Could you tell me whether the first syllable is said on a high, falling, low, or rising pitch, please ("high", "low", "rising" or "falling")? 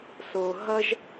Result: low